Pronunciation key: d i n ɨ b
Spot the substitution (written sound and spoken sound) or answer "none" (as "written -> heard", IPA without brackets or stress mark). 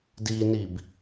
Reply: ɨ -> i